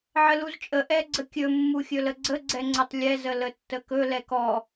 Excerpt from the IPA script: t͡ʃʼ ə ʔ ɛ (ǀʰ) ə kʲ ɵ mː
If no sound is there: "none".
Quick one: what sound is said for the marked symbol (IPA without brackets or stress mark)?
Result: ɡ͡ǀ